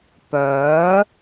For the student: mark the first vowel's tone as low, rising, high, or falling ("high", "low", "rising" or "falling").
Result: rising